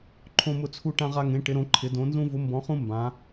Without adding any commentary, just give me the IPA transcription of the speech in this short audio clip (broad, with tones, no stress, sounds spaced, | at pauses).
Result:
ǃʰ õ˦ m ʊ˦ t͡sʰ u˦ ʈ ã˦ ʁ a˦ ŋ ẽ˨˦ ʈ ɪ˨˦ ɾ õ˨˦ ǃʰ ɪ˨˦ d õ˨˦ n z ũ˦ v ʊ˨˦ m b ɔ̃˨˦ χ ũ˦ m b ã˨˦